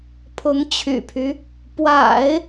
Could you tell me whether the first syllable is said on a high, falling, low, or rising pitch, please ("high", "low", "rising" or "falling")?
rising